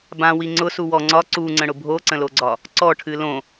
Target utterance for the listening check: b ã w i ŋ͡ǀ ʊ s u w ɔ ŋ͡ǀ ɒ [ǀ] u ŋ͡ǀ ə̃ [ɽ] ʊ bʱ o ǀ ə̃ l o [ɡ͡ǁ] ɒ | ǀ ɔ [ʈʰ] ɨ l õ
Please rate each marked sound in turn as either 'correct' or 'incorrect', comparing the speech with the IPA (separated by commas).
correct, correct, incorrect, correct